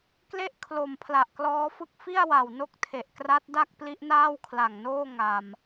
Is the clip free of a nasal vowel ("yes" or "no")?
yes